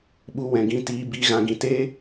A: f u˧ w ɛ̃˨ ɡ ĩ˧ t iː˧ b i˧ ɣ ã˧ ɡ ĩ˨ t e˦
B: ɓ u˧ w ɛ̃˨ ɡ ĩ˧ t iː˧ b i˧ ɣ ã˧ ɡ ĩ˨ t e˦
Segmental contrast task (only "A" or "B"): B